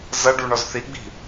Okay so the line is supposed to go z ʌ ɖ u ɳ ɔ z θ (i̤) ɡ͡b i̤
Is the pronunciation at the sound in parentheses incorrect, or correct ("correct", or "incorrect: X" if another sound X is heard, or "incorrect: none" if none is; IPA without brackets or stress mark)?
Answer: incorrect: i